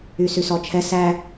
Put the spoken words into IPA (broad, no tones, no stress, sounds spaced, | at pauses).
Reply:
y s y s ɔ t͡ʃʰ ɛ s æ